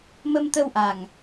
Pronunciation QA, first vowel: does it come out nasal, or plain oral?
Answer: oral